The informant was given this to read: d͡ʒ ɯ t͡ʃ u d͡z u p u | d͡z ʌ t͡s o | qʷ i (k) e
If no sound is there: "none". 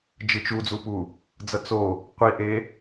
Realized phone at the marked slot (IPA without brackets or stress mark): ʔ